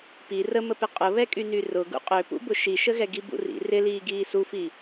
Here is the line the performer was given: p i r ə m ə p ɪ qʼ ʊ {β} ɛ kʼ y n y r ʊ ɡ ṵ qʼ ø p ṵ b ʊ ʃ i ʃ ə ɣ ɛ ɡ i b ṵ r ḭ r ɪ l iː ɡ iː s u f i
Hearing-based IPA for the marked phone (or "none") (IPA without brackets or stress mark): β